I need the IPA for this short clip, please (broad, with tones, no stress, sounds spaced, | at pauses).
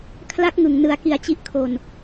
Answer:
kʰ l a˦˥ k̚ ŋ ɯ˨˩ ŋ n ɯ˩˦ a̯ k i˩˦ a̯ t͡ɕ i˦˥ ʔ kʰ o˧ n